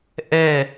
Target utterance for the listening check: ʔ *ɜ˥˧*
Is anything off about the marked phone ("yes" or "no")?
yes